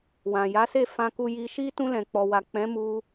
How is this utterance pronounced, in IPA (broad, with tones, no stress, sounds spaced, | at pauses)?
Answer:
w ã˨ j a˨˦ s e˦˨ f ã˧ k u˧ j i˧ ʃ i˦ t ũ˧ l ɛ̃˨ k͡p ɔ˨ w a˨ k͡p ɛ̃˨˦ m u˧